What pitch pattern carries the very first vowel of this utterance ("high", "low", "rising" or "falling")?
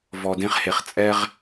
low